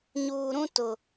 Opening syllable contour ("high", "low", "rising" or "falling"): low